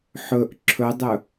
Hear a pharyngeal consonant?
yes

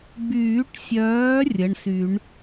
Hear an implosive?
no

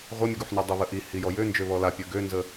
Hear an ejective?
no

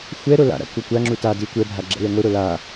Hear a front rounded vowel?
no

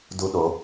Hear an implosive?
yes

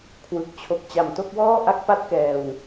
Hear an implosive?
no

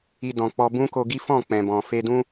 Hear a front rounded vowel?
no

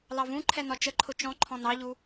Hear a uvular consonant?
no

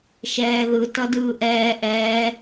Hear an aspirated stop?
no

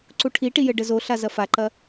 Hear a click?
yes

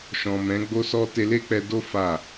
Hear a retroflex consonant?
no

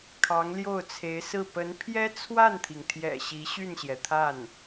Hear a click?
no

